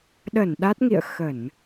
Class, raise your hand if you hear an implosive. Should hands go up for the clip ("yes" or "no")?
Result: yes